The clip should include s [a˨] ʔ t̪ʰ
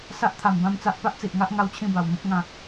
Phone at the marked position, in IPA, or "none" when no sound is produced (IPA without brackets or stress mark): a˦